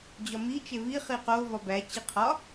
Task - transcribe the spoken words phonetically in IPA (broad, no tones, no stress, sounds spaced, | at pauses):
d͡ʑ ɒ m i t͡ʃ e v i χ i q o v ɒ b æ t͡ɕ i qʰ ɒ